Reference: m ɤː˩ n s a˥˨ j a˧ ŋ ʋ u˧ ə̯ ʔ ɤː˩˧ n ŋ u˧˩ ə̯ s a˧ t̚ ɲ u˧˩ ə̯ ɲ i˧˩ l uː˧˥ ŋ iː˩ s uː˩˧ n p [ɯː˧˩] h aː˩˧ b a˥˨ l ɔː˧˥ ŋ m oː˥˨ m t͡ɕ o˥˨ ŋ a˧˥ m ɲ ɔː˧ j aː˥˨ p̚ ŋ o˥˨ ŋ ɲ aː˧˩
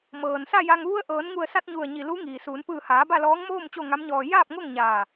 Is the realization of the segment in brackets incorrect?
no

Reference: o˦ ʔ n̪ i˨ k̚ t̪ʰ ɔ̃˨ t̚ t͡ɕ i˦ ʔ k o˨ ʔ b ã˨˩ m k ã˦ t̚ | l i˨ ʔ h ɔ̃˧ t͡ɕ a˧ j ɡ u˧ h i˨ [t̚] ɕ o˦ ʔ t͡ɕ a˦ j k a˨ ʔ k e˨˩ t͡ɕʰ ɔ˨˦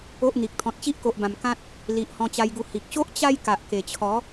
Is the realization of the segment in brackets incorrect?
yes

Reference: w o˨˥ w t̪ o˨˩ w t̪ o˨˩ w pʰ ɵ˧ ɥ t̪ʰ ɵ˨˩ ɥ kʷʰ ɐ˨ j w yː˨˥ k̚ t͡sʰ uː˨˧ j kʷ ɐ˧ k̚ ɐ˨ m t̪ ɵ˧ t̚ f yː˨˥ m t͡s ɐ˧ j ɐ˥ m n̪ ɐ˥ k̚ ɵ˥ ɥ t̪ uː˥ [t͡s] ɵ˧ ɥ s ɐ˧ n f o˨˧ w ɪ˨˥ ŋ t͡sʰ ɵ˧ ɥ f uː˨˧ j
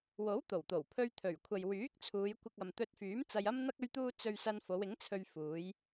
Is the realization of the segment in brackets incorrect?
no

